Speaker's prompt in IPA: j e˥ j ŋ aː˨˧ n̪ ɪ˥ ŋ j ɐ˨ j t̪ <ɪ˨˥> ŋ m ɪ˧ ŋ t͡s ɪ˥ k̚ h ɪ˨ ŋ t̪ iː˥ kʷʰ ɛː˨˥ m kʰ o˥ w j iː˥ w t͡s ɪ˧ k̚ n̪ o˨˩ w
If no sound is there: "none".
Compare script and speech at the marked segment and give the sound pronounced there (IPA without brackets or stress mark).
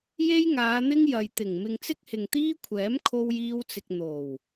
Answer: ɪ˨˩